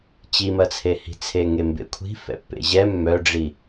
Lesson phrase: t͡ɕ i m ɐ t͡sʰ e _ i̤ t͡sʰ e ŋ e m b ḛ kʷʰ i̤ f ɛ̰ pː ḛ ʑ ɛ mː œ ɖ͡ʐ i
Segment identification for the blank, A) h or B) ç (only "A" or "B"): A